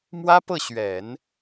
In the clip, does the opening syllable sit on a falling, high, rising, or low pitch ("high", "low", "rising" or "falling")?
high